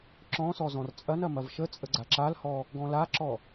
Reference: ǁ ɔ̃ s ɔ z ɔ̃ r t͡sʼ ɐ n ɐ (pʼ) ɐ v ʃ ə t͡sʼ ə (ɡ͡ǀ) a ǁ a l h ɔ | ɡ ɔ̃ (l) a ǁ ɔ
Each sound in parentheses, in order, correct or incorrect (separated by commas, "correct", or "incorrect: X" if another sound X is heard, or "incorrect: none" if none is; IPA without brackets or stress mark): incorrect: m, correct, correct